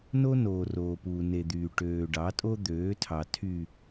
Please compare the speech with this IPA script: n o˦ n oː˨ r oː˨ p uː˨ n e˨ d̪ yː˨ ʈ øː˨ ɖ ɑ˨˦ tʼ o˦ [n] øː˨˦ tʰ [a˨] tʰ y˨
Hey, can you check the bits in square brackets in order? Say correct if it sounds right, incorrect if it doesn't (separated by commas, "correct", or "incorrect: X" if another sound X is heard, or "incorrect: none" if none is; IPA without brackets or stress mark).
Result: incorrect: d̪, incorrect: ɑ˨